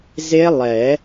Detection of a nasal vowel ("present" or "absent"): absent